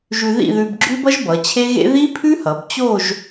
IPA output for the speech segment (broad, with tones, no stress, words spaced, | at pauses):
ʒʉ˧ ðḭ˥˧ðʉ˧bɡ͡ǁʉ˥bʌ˥ʒ bʌ˩˧t͡ɕʰe˥ɣḛ˥ ði˥pʰʉ˥hʌ˩˧b t͡ɕo˥˧ʒ